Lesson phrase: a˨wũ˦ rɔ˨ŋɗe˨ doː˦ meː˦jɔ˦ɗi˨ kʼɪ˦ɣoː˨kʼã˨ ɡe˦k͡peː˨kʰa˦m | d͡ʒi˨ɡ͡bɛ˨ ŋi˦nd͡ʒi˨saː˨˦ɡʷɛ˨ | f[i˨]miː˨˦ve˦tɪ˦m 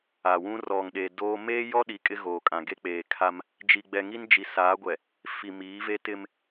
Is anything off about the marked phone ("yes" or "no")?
no